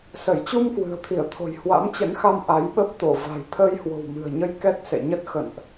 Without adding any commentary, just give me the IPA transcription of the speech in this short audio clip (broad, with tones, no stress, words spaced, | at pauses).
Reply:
sə˧˩jt͡ɕu˧m kwɨ̤˨˩ə̯t̪ʰi˧˩ə̯t̪ʰo̤˨˩j hwa̰˧˥mt͡ɕə̰˧˥nxa˧m ʔa˨˦jɓə˦˥p̚ t̪o˧˩va̤˨˩j t̪ʰəː˧jhwo̤˨˩wmɨ̤˨˩ə̯ɲə˧j kɛ˦˥t̚sḛ˧˨ɲə˦˥t̚ xə̰˧˨nʔ